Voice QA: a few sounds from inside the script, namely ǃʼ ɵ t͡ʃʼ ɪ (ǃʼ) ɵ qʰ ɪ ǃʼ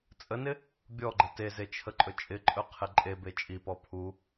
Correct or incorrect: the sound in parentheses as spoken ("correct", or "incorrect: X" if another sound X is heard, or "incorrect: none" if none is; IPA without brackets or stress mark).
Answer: correct